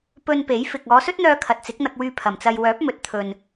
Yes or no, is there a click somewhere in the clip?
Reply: no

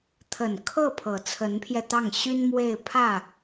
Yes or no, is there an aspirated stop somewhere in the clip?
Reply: yes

